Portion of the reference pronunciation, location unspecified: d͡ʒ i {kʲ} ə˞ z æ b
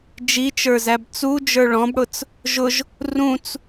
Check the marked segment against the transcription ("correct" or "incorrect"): incorrect